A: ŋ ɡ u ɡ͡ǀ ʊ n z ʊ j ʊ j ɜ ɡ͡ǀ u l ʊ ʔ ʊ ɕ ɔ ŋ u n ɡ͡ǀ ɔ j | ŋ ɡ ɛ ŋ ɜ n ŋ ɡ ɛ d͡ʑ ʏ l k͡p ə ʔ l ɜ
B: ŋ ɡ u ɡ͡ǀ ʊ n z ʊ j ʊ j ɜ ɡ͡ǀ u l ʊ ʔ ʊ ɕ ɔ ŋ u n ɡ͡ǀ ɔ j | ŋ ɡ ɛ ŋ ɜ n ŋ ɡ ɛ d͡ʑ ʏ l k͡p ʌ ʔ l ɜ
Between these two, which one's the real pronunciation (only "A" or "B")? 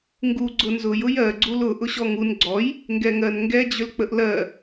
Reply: A